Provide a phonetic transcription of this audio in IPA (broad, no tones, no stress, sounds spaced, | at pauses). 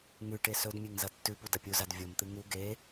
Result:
ŋ ʉ ʈ e s ɵ d mʲ e ŋ z ɐ tː ʉ p u d ɐ pʲ u z a d vʲ o m t̪ ɨ ŋ u ɡ e